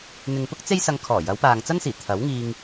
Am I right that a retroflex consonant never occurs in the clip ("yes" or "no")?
yes